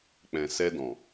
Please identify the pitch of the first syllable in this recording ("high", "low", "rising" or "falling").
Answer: low